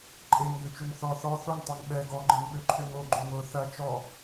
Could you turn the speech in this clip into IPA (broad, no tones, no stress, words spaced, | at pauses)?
ǃʼeŋɡøt͡ʃøŋ θɔ θɔ θoŋtˤɛŋ ɓɛ ɡɔɡ͡ǃɪŋɓøǃʰøŋ oɡ͡ǃoŋ ʊ θɐ t͡ʃɔ